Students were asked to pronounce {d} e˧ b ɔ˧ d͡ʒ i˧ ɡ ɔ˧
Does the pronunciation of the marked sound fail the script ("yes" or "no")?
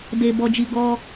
no